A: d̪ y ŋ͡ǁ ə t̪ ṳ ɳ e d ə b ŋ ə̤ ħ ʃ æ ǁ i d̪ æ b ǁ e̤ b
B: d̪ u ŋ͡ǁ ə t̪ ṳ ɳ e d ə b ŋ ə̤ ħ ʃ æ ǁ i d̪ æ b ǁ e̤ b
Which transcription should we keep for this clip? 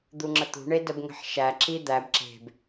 B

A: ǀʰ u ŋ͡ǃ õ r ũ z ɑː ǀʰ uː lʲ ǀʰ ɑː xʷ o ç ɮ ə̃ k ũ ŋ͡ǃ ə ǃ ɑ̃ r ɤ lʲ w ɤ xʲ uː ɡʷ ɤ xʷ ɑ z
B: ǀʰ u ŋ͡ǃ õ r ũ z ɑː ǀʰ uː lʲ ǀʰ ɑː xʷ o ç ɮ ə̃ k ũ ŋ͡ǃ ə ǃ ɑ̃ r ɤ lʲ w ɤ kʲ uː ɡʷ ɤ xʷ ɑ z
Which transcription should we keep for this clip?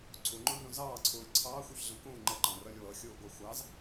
A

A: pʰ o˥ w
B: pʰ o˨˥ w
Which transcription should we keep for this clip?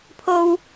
A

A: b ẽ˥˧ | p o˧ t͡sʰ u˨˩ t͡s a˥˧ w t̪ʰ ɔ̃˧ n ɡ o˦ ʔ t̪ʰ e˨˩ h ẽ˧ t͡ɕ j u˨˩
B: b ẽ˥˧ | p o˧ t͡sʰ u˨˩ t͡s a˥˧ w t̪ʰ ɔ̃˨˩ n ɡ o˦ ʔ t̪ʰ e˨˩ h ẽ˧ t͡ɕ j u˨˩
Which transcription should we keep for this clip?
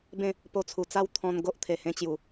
A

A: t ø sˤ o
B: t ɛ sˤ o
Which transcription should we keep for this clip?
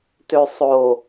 A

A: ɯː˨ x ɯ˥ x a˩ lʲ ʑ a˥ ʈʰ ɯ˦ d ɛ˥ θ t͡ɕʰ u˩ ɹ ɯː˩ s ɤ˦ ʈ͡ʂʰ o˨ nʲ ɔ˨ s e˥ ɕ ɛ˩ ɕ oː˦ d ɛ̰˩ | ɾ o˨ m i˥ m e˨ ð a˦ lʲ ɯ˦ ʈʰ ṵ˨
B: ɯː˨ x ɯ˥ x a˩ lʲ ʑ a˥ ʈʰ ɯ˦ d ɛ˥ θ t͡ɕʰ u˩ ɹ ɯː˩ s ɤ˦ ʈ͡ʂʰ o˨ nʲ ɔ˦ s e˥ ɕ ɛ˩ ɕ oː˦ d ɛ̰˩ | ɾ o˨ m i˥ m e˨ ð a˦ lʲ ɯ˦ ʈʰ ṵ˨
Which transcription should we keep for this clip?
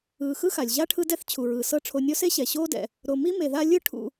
B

